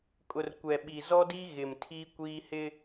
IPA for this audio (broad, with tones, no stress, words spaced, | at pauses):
kʼʊ˨rkʷɛ˨ɓi˨ zɔ˦di˦ ɣɪ˨mtʰi˦kʷiː˦ hɪ˦